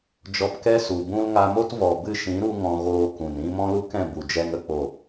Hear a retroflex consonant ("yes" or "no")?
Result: no